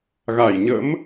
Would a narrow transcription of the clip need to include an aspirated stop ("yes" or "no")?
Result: no